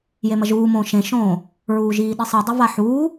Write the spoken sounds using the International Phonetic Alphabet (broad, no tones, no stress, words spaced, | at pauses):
jemɐʒuːmõː ʃẽʃõː | ɹuːʒiːɗisˤɨ dˤɘvaħuː